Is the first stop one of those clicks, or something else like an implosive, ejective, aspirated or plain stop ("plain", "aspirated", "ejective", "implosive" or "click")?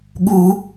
implosive